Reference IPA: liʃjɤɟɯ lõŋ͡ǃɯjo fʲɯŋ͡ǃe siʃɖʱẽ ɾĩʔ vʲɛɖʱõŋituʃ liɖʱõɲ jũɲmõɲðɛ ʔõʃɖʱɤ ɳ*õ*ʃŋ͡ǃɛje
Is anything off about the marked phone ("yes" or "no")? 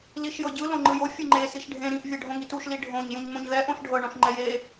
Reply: yes